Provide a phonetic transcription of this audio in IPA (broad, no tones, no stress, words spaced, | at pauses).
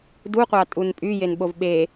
duqʷɑtʼun pʼyjenɓov ɓe